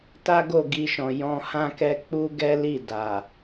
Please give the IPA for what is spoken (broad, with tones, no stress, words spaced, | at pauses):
ta˦ɡo˦˨ ɡi˧ʃɔ̃˨ jɔ̃˧hã˦kɛ˦ k͡pu˦ɡɛ˦ li˦˨da˨